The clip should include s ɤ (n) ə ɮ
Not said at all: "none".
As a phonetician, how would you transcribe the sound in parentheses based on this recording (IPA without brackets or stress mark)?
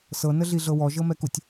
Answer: n